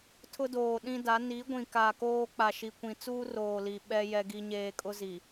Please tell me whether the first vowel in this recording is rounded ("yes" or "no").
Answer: yes